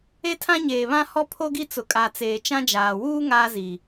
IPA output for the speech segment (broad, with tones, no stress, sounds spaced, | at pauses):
e˦ tʰ ã˦ ɲ eː˨ β ã˦ h ɔ˦ pʰ o˦ ɡ i˦ t͡s ʊ˨ kʼ a˨ t͡s eː˨ t͡ʃ ã˦ d͡ʒ aː˨ w uː˦ ŋ aː˦ z i˨